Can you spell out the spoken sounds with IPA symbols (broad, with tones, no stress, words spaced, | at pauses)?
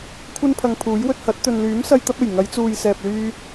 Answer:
kʷʰɐ˥npʰɐ˧ŋpʰuː˨˥j wɵ˧t̚hɐ˨˥t̚ t̪ɵ˨nlyː˨˥msɐ˧j t̪ɐ˥p̚e˨˩j ŋɐ˨˧jt͡suː˨jsɛː˨p̚lyː˧